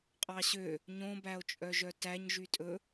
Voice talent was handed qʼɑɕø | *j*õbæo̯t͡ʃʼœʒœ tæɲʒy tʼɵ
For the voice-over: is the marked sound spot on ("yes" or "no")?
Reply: no